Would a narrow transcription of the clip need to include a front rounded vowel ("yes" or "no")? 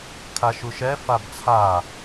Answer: no